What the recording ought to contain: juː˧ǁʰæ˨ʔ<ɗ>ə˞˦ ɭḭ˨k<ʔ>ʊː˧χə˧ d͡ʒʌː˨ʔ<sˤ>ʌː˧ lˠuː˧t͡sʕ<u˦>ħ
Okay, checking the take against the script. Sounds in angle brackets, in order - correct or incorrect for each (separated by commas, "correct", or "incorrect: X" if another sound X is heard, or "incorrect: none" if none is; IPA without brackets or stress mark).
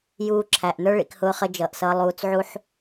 incorrect: n, incorrect: h, incorrect: s, correct